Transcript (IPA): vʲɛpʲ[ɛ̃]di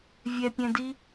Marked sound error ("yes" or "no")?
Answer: no